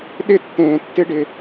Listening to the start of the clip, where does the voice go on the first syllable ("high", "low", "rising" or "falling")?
falling